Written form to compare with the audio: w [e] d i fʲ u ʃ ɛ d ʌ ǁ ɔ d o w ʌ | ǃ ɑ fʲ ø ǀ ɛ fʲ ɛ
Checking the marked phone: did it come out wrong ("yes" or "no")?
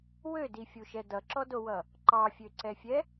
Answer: yes